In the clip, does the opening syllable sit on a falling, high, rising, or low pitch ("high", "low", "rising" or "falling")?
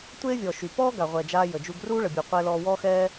high